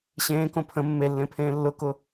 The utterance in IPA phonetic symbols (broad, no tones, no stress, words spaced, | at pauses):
ɕẽːkõ pʰə̃ mːelːẽpʰẽː lːʊkʊ